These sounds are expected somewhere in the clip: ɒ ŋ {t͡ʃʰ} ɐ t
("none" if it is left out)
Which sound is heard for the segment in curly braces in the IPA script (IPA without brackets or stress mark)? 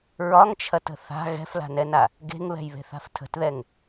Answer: t͡ʃʰ